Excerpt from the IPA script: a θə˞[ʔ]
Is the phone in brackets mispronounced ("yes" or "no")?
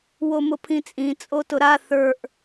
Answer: no